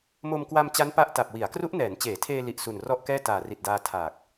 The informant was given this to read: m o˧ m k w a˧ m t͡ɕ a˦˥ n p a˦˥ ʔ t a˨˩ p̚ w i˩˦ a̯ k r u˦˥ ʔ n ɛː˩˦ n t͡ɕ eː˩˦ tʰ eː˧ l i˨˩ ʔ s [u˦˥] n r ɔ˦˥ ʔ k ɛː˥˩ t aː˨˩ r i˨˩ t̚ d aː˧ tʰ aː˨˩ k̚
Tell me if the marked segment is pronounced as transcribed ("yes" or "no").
no